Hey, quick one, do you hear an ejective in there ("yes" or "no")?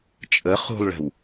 yes